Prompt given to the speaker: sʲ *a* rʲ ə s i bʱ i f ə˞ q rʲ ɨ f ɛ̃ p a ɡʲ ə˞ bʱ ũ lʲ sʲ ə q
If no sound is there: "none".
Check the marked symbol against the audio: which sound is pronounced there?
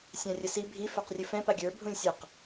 ã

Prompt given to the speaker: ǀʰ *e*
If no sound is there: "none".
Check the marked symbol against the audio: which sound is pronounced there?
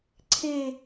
e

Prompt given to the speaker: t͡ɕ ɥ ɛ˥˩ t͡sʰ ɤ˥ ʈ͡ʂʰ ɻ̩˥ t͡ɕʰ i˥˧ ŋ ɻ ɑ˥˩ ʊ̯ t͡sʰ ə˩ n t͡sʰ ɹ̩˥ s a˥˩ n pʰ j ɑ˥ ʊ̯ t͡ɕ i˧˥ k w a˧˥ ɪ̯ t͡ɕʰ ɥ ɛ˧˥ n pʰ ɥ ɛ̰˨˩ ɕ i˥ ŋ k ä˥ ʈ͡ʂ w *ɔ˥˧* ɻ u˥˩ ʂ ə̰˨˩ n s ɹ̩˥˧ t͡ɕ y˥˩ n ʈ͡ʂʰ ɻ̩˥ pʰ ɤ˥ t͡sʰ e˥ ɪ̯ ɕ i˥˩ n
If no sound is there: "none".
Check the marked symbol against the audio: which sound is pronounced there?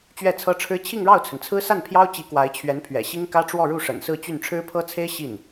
ɔ˥˧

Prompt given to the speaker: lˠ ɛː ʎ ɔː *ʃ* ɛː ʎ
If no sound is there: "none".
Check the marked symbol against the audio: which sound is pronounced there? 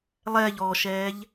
ʃ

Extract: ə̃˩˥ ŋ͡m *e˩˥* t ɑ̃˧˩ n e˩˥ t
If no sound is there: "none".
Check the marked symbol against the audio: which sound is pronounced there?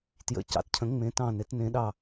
ẽ˩˥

